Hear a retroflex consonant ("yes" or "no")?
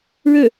yes